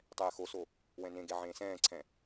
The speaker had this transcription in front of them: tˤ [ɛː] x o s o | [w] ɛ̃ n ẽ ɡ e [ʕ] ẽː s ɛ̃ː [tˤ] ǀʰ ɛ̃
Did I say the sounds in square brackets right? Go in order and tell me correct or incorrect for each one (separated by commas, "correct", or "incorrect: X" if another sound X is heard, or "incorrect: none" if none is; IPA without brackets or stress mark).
correct, correct, correct, incorrect: none